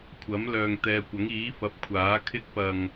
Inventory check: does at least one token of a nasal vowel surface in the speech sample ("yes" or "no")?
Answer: no